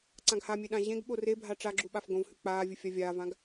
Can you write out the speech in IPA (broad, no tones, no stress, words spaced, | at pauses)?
ǀãɡhamʲe ɗãʑẽɡɓo rebʱa ʈ͡ʂaɡ͡ǁu ɓafɡõvhʉ k͡paːvʲɨ fʲavʲaːvãɡ